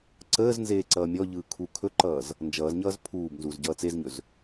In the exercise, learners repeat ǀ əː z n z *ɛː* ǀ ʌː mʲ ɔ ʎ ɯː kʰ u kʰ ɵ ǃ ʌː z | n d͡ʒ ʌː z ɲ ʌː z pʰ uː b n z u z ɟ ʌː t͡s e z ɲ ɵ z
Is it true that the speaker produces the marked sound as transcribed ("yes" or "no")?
no